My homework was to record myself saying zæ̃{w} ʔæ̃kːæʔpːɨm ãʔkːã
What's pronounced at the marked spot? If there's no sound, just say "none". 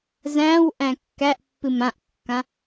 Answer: w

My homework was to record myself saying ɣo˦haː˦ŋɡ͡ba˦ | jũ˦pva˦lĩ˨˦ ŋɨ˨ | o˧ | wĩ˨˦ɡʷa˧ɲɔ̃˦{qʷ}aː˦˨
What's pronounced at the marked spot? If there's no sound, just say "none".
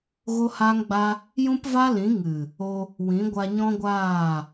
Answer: ɡʷ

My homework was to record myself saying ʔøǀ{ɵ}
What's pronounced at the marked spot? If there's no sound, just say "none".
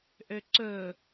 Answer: ɵ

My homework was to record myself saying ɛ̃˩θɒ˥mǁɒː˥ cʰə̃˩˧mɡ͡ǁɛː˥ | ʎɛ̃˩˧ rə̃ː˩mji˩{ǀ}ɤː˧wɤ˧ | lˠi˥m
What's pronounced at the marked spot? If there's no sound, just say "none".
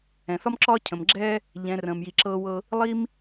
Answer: ǁ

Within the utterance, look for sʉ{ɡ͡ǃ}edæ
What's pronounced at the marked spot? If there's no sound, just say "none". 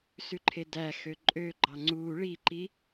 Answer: ǃʰ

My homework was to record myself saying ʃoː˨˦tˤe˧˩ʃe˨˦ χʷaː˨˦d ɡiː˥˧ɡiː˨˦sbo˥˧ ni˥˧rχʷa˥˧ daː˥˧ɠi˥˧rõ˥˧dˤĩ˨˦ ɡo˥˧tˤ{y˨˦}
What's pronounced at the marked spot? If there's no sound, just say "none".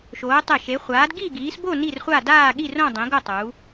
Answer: u˨˦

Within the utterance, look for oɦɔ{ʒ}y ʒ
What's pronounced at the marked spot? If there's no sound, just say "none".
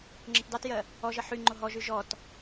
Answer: ʒ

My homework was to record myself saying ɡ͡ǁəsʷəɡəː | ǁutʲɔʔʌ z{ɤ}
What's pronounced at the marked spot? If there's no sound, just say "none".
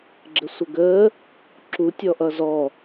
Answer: ɔ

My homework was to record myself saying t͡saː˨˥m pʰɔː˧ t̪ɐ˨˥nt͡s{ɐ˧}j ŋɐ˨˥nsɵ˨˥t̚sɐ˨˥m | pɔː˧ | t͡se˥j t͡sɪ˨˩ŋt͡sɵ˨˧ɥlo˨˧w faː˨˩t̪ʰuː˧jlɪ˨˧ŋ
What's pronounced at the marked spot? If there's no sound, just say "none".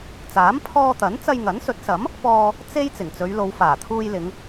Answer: ɐ˧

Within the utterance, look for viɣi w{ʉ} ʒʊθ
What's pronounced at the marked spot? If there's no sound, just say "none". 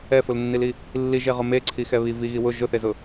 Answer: ʊ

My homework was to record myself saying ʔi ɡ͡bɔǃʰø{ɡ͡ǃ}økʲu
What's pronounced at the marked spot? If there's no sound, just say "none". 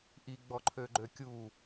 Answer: ɡ͡ǃ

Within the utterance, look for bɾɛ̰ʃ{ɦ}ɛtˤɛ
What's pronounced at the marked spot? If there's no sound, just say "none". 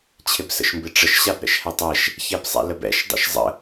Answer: h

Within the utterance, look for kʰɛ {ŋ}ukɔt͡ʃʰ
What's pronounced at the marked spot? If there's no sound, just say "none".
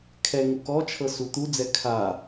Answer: ŋ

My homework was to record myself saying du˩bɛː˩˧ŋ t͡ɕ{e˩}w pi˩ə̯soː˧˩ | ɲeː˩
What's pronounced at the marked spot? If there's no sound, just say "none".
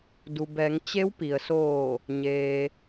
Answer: e˧˥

